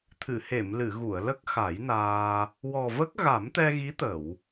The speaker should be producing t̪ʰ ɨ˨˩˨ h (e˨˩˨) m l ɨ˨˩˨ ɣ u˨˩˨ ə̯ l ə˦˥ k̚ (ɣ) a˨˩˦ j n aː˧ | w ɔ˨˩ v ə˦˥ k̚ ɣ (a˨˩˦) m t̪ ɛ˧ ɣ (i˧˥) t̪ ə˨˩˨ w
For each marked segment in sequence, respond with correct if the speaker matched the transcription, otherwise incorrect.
correct, incorrect: x, correct, correct

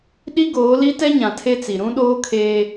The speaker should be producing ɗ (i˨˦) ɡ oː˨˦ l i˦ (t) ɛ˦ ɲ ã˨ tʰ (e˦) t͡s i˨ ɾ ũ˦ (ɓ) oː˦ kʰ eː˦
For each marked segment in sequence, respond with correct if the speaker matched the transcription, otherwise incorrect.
incorrect: i˦, correct, correct, incorrect: ɗ

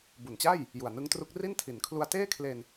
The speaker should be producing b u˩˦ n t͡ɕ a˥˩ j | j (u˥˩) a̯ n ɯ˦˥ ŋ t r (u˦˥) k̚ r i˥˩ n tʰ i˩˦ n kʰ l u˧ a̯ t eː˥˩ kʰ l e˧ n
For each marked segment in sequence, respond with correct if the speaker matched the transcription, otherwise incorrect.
incorrect: u˨˩, correct

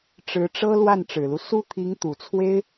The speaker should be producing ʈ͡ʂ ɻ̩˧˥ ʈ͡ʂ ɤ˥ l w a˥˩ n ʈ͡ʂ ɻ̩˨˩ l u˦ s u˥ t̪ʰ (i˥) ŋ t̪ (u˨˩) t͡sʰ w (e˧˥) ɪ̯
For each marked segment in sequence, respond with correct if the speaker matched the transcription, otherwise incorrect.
incorrect: i˧˥, correct, incorrect: e˥

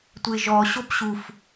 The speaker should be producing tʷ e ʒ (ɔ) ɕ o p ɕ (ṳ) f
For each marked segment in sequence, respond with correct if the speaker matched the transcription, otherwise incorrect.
correct, incorrect: u

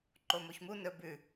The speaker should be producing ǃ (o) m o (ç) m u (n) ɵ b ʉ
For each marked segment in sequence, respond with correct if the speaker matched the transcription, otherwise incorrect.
correct, correct, correct

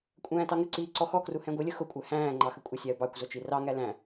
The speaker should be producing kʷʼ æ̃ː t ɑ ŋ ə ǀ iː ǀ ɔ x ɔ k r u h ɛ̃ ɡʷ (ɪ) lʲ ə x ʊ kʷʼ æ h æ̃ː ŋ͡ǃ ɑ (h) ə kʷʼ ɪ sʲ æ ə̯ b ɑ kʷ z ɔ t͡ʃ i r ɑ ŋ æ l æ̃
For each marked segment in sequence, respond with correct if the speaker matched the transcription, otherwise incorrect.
correct, incorrect: x

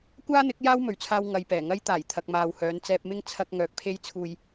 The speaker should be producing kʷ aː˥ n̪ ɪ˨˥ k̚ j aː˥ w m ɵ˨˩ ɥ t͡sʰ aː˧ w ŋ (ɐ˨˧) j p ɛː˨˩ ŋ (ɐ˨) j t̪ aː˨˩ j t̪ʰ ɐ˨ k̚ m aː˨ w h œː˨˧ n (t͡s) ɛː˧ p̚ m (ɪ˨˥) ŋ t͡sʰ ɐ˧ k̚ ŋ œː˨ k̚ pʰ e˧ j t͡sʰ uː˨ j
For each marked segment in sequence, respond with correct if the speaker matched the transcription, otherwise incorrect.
correct, incorrect: ɐ˥, correct, incorrect: ɪ˥

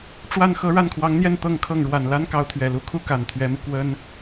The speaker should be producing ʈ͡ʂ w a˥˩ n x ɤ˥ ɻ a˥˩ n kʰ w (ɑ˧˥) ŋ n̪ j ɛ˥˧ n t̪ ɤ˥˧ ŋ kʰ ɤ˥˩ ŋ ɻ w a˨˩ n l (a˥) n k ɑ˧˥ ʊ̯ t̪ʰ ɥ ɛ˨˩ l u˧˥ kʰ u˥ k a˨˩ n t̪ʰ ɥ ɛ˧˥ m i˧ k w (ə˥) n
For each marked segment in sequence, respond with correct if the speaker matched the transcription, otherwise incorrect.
correct, correct, correct

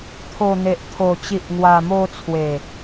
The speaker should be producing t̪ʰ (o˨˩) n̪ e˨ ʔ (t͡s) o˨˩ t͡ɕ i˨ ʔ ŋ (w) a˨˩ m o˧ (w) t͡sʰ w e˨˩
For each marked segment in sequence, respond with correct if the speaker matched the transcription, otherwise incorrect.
correct, incorrect: t̪ʰ, correct, incorrect: none

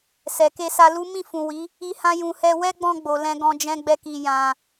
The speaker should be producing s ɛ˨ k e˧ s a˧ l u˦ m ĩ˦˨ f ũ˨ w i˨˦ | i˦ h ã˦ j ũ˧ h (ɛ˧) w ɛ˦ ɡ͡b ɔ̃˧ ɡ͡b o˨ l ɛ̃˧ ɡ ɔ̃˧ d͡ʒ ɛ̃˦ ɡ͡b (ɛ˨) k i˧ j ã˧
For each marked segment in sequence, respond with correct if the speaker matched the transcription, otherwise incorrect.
correct, incorrect: ɛ˦

